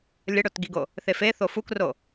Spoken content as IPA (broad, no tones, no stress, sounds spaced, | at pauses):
lʲ ə ɽ o t ɡ i ɡ o | θ e f e θ o f u k r o